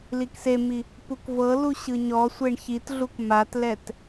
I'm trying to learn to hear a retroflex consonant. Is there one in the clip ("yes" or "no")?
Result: yes